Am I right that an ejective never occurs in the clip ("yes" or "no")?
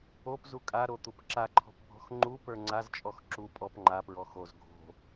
no